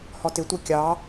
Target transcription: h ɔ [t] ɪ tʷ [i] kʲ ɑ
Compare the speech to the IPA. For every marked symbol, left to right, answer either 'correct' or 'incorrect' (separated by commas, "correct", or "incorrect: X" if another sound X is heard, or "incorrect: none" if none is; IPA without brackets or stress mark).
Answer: correct, correct